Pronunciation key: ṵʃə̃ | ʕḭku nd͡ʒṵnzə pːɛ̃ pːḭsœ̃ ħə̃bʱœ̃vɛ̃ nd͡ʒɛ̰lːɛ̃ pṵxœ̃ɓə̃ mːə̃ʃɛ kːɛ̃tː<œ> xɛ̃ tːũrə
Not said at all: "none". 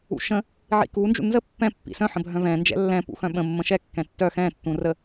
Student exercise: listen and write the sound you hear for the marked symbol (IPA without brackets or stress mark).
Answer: œ